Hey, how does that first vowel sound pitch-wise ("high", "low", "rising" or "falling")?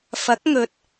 rising